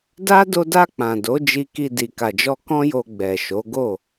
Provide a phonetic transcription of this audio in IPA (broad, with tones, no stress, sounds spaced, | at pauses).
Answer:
d a˦ d o˧ d a˧ k͡p ã˨ d o˨˦ d͡ʒ i˧ k i˧ d i˨ k a˨ d͡ʒ ɔ˧ k ɔ̃˦ j o˧ ɡ͡b ɛ˨ ʃ o˨˦ ɡ o˦˨